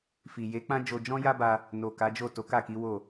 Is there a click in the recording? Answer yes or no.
no